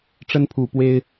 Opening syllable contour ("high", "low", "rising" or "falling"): high